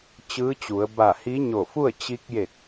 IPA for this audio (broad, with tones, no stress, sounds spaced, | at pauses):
t͡ɕ ɯː˧˥ t͡ɕ u˩˧ ə̯ b a˧˩ h i˧˥ ɲ o˧˩ f u˥˨ ə̯ t͡ɕ i˧ k̚ j e˧˩ k̚